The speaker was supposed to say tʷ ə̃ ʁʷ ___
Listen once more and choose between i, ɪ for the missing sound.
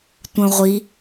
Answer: i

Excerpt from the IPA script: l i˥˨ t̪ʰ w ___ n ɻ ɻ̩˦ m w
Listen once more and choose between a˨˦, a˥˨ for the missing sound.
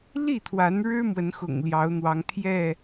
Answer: a˨˦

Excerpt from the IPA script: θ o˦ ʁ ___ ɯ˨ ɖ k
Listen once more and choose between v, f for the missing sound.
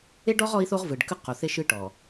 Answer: v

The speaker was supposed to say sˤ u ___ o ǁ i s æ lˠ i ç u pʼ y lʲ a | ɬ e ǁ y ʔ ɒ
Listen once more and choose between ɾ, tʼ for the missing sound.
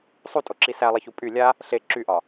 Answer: tʼ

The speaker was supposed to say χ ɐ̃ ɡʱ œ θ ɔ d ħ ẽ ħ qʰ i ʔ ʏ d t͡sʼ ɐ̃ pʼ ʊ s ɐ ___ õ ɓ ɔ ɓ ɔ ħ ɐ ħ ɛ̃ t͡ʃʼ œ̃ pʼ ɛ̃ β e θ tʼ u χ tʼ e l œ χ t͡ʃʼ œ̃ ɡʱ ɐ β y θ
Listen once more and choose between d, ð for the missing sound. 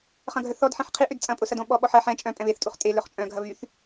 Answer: d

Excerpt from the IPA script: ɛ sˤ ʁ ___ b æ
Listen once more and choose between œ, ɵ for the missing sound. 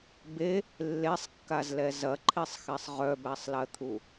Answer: œ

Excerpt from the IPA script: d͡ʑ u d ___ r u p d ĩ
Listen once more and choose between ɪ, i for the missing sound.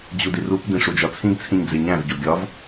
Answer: i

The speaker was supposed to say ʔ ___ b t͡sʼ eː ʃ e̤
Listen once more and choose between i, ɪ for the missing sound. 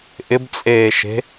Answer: ɪ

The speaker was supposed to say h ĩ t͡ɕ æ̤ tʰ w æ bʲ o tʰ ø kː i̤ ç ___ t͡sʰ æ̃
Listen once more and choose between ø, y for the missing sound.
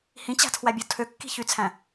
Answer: y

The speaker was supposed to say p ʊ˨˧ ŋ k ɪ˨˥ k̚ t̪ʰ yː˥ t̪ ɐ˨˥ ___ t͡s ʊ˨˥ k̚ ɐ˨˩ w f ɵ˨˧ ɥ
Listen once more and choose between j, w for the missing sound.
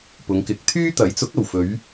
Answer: j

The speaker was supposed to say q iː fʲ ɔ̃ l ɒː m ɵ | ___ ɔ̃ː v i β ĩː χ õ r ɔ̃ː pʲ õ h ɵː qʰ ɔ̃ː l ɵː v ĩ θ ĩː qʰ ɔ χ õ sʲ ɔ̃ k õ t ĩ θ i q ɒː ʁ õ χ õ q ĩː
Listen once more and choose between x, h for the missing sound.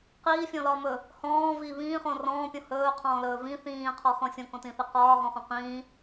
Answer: h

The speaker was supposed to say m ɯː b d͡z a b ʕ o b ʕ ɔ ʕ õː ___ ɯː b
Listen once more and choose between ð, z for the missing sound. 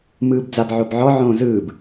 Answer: z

